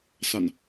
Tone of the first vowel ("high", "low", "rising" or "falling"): low